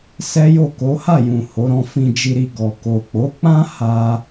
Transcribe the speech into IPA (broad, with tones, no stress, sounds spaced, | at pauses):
s ɛ˦ j o˦˨ k o˨˦ h a˦˨ j ũ˨ h o˨˦ ɾ ɔ̃˧ f ĩ˧ d͡ʒ i˧ ɾ i˧ ɡ ɔ˨ k o˨ k͡p o˨˦ k͡p ã˦ h a˦